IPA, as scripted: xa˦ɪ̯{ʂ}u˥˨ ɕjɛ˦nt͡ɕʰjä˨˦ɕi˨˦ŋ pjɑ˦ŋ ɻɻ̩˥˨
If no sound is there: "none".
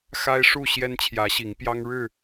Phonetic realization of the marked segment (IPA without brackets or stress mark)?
ʂ